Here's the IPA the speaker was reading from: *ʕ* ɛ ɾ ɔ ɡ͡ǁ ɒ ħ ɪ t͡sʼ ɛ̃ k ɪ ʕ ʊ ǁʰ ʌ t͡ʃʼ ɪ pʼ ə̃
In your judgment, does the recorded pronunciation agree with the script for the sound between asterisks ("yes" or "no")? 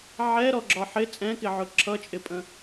yes